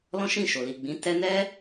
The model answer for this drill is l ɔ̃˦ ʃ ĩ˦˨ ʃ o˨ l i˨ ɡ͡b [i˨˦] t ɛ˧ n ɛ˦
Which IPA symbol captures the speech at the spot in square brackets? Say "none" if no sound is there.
ĩ˨˦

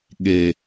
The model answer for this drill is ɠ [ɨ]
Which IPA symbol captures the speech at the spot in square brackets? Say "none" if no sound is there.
e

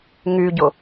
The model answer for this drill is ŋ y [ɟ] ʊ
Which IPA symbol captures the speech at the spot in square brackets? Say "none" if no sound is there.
ɟ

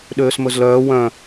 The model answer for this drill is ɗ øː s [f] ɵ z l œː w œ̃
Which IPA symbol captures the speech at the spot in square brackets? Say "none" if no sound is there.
m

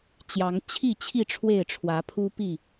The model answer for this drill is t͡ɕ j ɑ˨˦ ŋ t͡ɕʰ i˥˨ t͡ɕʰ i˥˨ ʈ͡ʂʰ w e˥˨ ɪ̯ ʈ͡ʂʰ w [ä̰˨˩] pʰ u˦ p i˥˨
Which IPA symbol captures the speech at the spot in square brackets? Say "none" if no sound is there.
ä˨˦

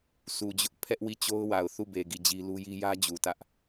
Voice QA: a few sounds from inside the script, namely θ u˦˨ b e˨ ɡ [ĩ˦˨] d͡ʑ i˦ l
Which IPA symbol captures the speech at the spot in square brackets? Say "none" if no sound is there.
i˦˨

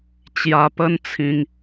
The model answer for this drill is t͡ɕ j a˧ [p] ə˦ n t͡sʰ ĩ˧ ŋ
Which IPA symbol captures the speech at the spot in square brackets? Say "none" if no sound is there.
p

